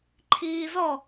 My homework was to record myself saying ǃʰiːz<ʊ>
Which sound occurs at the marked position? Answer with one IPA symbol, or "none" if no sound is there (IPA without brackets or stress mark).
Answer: ɔ